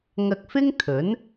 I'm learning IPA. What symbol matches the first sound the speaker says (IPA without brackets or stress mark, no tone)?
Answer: ŋ